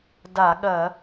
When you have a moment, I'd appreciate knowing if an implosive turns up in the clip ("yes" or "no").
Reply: yes